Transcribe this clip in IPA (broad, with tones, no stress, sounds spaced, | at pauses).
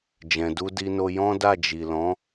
d͡ʒ ɛ̃˨ d u˧ d i˧ n o˧ j ɔ̃˦ d a˦˨ d͡ʒ i˨ l ɔ̃˨˦